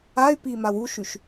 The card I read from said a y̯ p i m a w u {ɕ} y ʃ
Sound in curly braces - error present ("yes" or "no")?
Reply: yes